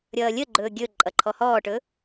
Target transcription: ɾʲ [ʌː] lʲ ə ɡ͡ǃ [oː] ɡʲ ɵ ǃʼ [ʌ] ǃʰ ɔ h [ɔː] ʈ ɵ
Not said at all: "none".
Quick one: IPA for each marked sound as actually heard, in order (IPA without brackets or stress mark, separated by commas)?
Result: ʌː, ɵː, ʌ, ɔː